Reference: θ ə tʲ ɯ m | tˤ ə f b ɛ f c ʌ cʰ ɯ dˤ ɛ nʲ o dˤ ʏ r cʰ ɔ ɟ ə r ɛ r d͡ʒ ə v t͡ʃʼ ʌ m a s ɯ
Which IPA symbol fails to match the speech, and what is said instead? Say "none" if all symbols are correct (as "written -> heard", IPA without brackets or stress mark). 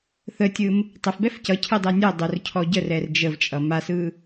none